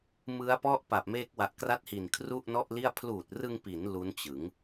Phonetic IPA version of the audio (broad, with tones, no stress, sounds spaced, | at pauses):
m ɯ˦˥ a̯ p ɔ˥˩ ʔ p a˨˩ p̚ m e˦˥ k̚ w a˨˩ ʔ k r a˥˩ t̚ h i˨˩ n kʰ r u˥˩ ʔ n ɔ˥˩ ʔ l i˥˩ a̯ pʰ l uː˨˩ t̚ r ɯ˧ ŋ p i˩˦ n l u˦˥ n t͡ɕ ɯ˩˦ ŋ